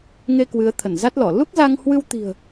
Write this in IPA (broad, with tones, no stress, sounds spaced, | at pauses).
ŋ e˧ k w ɨ˨˦ ə̯ t̪ʰ ə˧˩ n z a˦˥ t̚ l ɔ˧˩ l u˦˥ k̚ z a˧ ŋ h w ɨ˧ w t̪ i̤˨˩ ə̯